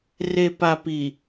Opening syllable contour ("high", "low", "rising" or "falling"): low